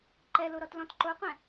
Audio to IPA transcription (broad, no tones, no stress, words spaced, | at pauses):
ǃɛloɾɔtlɔ̃t ǃoqʷɛ̃